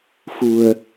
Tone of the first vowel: low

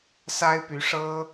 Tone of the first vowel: high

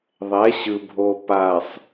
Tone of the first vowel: rising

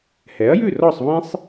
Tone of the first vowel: rising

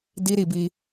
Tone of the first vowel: high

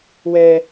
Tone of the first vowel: high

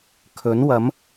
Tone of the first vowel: rising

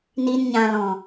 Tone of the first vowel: low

